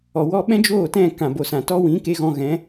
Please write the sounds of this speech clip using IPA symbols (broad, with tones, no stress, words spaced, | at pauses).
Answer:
ɔ˨wɔ˧ ɓɛ̃˦d͡ʒoː˦˨tɛ̃˦˨ kã˨bo˨sã˨ tɔ˦wĩ˨˦ ke˧ɣɔ̃˧ɣɛ̃˨˦